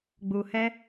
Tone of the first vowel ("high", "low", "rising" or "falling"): low